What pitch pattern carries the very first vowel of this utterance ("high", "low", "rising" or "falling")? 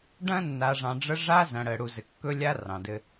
high